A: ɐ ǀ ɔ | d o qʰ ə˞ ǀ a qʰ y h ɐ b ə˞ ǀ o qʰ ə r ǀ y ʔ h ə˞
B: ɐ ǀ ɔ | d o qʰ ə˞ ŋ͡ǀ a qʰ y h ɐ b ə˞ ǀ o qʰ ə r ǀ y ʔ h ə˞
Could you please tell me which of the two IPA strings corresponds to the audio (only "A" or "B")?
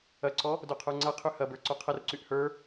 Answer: B